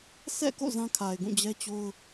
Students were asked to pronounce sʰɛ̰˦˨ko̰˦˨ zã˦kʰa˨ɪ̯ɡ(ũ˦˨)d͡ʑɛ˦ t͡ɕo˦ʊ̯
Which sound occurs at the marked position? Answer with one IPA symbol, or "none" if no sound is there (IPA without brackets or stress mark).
ũ˦˨